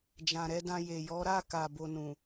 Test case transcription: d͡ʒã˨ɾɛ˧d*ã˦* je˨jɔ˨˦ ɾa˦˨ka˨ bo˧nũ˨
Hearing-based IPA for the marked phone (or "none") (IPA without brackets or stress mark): ã˧